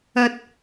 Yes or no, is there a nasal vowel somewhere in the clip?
no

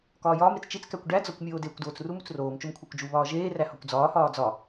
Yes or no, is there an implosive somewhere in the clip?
no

